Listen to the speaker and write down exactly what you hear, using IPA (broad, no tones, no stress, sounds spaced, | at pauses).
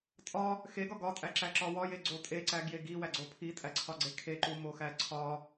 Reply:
tʼ ɒ | x e ɡ ɒ ɡ ɒ tʼ æ ǁ æ ǁ ɒ w ɒ j e ɡ͡ǀ o tʼ e ǀ æ ɡ j e ɡ i w æ ɡ͡ǀ o pʰ i tʼ æ ǀʰ ɒ ɡ͡ǀ e kʰ e ǃ u m o x æ ǀʰ ɒ